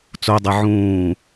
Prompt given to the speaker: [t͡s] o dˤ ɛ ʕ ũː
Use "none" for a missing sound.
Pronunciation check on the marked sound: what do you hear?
t͡s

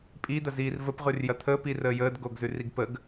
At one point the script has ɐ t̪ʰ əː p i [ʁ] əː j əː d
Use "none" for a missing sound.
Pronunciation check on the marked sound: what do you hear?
r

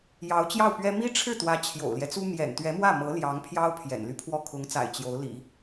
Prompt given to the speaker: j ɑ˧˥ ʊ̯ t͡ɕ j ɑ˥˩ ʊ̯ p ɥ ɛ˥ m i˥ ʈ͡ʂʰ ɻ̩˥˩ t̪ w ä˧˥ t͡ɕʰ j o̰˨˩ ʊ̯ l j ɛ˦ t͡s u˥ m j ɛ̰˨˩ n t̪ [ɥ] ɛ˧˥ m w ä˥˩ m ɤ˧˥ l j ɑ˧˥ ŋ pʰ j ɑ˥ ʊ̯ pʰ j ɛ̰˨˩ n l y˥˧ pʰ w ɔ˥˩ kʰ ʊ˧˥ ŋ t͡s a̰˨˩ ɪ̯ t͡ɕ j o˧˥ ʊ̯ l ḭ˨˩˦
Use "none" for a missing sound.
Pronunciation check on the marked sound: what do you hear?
ɥ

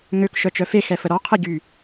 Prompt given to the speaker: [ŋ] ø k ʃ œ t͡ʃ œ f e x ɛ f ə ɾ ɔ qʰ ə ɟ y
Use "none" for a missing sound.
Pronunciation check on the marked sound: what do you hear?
ŋ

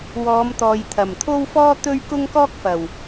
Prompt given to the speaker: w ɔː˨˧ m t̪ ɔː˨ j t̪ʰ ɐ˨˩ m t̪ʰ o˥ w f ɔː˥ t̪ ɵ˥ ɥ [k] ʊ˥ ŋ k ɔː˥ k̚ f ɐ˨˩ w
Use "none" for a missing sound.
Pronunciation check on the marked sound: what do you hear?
k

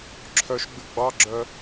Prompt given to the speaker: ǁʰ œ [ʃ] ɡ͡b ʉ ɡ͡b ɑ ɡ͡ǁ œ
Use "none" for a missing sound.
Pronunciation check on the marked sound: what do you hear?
ʃ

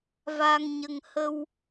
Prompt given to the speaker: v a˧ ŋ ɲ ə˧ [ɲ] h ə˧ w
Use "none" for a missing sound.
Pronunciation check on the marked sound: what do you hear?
ŋ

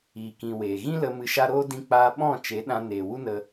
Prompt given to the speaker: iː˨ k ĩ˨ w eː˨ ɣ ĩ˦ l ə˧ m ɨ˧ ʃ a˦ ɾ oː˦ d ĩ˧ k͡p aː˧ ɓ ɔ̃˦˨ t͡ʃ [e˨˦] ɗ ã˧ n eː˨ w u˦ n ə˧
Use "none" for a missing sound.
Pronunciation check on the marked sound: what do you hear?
e˨˦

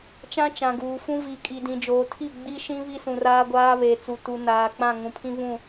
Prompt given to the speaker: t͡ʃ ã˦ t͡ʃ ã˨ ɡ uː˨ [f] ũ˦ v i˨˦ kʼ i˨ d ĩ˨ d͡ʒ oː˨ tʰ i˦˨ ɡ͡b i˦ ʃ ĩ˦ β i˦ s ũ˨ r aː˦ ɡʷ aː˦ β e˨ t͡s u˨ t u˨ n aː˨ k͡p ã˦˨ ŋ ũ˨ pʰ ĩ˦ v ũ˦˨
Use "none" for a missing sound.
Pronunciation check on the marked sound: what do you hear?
f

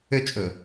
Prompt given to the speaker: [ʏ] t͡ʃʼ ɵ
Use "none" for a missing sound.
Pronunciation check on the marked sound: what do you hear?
ʏ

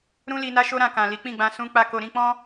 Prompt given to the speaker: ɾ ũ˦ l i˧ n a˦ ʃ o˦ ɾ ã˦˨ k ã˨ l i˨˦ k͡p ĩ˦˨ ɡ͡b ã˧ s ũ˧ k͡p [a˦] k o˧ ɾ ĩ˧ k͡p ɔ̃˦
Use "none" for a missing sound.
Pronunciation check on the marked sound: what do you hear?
a˦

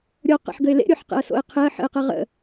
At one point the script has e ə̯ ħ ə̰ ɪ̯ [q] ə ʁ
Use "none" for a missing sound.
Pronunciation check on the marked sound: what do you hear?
q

